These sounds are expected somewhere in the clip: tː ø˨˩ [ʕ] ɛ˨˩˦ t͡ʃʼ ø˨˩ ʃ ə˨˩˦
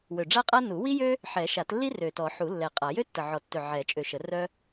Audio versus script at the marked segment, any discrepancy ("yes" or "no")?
no